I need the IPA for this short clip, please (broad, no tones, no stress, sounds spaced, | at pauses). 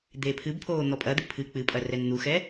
d̪ eː pʰ ɨ b pʰ oː n̪ ɔ pʼ ɐ d̪ ɨ pʰ ɨ k͡p ɨ pʼ ɐ r ɛ n n̪ u x ɛ